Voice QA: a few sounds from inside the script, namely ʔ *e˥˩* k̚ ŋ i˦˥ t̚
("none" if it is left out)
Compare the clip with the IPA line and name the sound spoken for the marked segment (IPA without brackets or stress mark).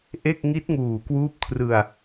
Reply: e˥˩